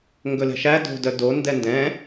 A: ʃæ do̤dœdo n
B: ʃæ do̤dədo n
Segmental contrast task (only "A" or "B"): A